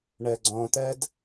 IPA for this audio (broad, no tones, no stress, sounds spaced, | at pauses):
ɳ ɜ ɡ͡ǀ ɔ̃ t̪ ɜ d